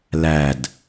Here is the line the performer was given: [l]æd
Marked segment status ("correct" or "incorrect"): correct